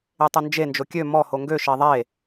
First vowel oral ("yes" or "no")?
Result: yes